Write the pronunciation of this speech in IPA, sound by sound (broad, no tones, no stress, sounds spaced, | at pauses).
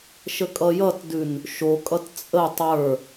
ʃ ə kʼ ʌ j ʌ t d ʉ n | ʃ o kʼ ʌ t t͡sʼ ə tˤ ə˞